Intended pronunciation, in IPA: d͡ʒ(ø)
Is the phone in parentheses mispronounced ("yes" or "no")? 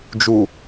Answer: yes